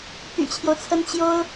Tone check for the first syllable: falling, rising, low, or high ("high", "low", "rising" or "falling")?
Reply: low